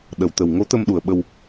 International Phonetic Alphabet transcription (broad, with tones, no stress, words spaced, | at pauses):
ɗə˨˩˨wt̪ə˨˩w ŋo˧˥t̪ə˧mɗu˨˩ə̯ɓə˧w